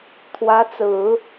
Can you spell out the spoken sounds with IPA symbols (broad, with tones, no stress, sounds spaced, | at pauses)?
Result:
t̪ʰ w ä˧˥ t͡s ɹ̩˨˩˦